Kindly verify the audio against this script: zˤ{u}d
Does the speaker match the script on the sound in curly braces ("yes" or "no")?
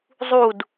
yes